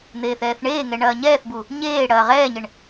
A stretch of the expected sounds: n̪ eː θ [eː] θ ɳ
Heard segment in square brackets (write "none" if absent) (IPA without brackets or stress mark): ɛː